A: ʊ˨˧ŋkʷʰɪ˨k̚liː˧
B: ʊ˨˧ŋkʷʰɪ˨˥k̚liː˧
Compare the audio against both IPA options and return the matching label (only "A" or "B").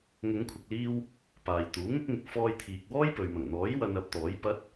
A